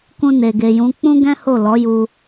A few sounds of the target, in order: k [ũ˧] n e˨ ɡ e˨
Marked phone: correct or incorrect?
correct